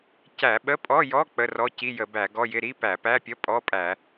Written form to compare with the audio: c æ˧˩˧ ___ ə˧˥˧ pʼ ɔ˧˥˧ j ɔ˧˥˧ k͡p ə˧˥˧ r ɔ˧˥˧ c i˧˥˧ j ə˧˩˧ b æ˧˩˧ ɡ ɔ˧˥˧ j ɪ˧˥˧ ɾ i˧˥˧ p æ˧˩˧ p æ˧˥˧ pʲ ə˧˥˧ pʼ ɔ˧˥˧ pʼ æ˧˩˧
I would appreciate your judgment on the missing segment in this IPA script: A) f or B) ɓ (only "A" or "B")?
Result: B